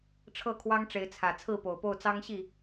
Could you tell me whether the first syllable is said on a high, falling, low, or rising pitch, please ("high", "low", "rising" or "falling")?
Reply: falling